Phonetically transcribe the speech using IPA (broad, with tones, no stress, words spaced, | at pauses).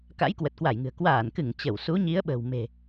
ka̰˧˥jkwə˨˩t̚kwa˧˩jŋɨ̤˨˩ə̯ kwaː˧˩nkɨ˧˩ŋ t͡ɕə˧˩w su˨˦ɲi˨˦ə̯ɓə̤˨˩wme̤˨˩